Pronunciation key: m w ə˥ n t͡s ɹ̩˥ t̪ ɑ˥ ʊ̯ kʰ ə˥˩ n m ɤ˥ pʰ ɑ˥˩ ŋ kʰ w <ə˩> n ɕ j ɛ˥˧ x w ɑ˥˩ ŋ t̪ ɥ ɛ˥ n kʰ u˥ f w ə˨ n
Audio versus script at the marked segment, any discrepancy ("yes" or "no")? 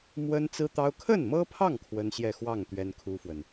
yes